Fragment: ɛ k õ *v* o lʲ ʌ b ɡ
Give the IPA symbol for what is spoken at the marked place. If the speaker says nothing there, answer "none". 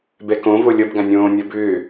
v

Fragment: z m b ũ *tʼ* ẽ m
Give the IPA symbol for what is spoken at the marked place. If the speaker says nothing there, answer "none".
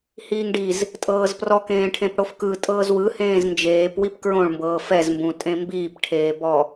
tʼ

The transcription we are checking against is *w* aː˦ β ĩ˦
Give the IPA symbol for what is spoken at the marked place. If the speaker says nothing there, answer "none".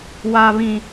w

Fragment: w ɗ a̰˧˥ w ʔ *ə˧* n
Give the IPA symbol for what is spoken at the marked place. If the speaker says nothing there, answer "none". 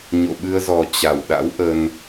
ə˧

